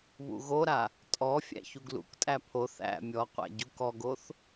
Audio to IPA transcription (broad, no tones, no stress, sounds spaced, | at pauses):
β ṵ ɣ o ɾ a | tʼ ɔ fʲ æ̰ ç u ɡ l ṵ k tʼ æ pʰ o θ æ̰ mʲ ɔ qʷ æ̰ ɟ u k ɔ ɡ o θ